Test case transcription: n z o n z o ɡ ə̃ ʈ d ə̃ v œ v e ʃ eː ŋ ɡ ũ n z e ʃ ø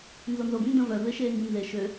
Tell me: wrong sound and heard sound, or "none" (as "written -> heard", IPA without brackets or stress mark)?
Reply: ʈ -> n